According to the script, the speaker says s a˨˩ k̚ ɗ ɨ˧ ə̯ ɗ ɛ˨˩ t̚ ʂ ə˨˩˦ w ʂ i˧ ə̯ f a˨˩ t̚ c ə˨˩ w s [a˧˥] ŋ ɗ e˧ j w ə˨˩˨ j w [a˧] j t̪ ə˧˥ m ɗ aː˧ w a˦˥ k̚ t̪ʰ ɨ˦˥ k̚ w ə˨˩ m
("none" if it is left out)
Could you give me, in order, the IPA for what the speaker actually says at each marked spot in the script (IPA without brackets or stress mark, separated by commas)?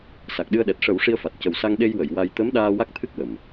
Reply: a˧, a˧